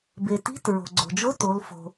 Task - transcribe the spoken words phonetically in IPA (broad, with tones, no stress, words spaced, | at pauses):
be˩ti̤˧˥˧t ɹo̤˩ɡ͡ǀo̤˩d͡ʒo˧˥˧ to˩˧lfo̤˩